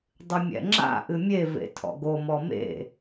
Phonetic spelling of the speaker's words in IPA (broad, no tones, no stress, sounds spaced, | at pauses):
dˤ ɨ mʲ ɛ̰ ŋ͡ǁ a̰ ʔ ɨ mʲ e v ḛ tʰ ɔ̰ ɡ o m ɔ m ḛ